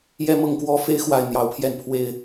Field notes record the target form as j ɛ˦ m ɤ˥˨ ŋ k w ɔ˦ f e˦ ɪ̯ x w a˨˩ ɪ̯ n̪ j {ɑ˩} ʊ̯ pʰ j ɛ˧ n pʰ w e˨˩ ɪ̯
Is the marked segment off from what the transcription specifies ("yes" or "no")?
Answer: yes